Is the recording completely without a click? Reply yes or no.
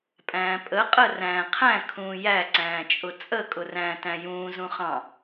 no